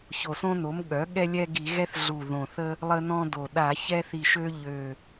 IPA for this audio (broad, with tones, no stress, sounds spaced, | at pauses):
ç o˨˩ s õ˦ n o˩˥ m ɠ œ˩˥ ɠ ɛ˦ lʲ ɛ˦ ɡ i˧˩˧ ɣ ɛ˦ θ ɮ u˨˩ ð õ˨˩ θ ə˦ | lˠ ə˦ n ɔ̃˦ d o˨˩ ɗ a˧˩˧ ç ɛ˦ θ i˨˩ ʃ ø˦ ʎ ø˨˩